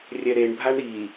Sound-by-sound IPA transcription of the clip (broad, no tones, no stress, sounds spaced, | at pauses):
rʲ ɛ ɾ e ɳ bʱ a ɳ ɾ i